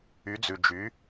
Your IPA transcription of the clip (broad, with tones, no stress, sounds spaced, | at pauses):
y˨˦ d͡z ʉ˨ d͡ʒ y˨˦